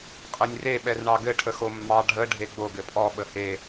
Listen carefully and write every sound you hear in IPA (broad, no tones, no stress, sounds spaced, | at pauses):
qʼ ə nʲ r e ɓ ɛ r ɳ ɑ ɡ ɘ ʈʰ ə x o mː ɑ ɖʱ ə ɖʱ e ɡ͡b o ɡ ɘ pʼ ɔ ɓ ə h e